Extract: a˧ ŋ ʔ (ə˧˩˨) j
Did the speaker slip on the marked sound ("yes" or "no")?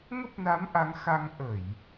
no